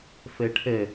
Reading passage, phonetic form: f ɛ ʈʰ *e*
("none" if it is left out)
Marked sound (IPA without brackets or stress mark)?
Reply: ɛ